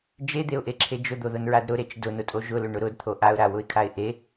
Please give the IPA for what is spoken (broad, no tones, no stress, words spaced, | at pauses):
d͡ʒed̪eʊ̯ʔeǁʰe d͡ʒʊd̪oðʊnɹad ɾʊɾet͡ʃ dʊnʊtʼo ʒʊlʊɳʊ ɾʊdt̪ʰo ʔaʊ̯ɾawʊɪ̯kʰaɪ̯ ʔe